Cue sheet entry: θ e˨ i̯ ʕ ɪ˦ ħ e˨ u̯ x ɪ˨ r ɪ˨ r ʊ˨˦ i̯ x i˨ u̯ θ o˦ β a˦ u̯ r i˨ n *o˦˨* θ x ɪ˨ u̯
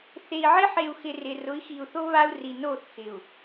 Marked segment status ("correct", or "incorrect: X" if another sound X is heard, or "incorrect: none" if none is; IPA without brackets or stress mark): correct